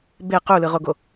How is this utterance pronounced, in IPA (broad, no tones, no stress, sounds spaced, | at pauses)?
b e q u l ɯ ʁ o ɡ o